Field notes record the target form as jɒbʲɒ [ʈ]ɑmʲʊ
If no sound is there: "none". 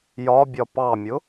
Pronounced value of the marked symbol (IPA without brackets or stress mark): p